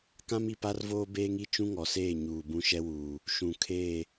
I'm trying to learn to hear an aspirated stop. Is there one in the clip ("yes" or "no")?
yes